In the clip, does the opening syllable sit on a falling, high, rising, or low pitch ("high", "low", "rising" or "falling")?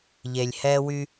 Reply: low